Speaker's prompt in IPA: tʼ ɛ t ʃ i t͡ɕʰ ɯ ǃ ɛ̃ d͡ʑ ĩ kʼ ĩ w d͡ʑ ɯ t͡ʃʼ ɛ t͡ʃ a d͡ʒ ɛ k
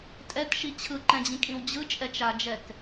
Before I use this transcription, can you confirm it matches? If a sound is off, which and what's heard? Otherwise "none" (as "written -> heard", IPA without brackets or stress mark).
none